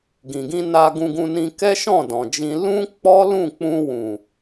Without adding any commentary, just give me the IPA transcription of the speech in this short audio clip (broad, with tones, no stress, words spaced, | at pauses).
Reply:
ɡĩ˨ɡĩ˧na˧ ɡũ˧ɡũ˧nĩ˧ kɛ˦ʃɔ̃˦˨dɔ̃˨d͡ʒĩ˧ lũ˦k͡pɔ˦ lũ˦˨k͡pũ˧wũ˨